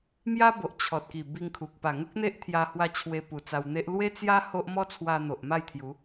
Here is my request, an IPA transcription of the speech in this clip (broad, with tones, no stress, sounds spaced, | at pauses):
m j a˦ b o˨ ʔ t͡ɕʰ ɔ˨ t̚ k i˨˩ b i˧ ŋ kʰ u˨ k̚ p a˨˩ ŋ u˦ k̚ n̪ e˦ ʔ t̪ʰ j a˧ h w a˧ t͡ɕʰ w e˧ p u˨˩ t͡s a˧ w n̪ e˦ ʔ l w e˦ t͡s j a˦ h o˦ ʔ m ɔ˦ t͡sʰ w a˧ n̪ o˨ ʔ m a˥˧ j t̪ʰ j u˨˦